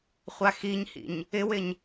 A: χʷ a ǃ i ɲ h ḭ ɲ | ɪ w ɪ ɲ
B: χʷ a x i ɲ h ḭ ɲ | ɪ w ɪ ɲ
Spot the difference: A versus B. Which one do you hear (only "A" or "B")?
B